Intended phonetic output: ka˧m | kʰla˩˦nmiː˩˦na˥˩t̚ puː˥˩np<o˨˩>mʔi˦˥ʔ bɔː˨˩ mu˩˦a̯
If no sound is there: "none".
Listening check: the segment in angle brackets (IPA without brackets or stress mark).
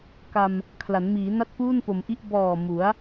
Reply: o˩˦